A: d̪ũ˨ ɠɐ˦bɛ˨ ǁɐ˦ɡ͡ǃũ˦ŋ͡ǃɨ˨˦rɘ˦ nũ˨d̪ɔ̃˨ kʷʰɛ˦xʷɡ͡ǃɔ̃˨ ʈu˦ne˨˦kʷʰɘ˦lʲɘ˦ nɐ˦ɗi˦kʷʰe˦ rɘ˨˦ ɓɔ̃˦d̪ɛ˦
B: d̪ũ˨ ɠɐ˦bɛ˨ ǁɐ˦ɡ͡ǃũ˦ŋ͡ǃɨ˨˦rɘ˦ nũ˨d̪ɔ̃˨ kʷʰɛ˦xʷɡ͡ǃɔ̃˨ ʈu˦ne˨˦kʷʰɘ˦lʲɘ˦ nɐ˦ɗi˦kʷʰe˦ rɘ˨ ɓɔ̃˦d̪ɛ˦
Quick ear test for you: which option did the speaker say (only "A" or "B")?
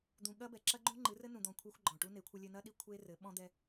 A